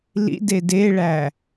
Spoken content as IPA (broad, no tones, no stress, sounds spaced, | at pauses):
l ḭ d e d e ɭ æ